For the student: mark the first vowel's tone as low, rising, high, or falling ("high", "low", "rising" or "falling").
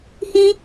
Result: high